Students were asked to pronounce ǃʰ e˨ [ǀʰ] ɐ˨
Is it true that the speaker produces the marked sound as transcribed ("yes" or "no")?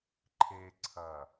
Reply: yes